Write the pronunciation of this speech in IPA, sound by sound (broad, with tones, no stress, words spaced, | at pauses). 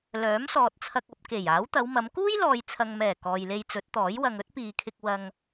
lœː˨˥msɔː˨t̚t͡sʰɐ˧k̚ɐ˧p̚ ke˨˩j aː˨˥wt̪ɐ˨˧wmɐ˨˧m kuː˥jlɔː˨jt͡sʰɐ˨ŋmɛː˨˩ kɔː˨jle˧j t͡sɵ˨˥t̚t̪ɔː˨˥jwɐ˧ŋ ɵ˥t̚piː˨kʰɪ˧k̚ wɐ˧ŋ